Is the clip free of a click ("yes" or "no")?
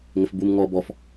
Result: yes